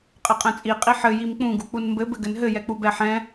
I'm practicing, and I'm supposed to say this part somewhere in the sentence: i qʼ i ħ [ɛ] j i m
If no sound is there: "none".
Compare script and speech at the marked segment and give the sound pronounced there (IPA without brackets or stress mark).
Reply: ɘ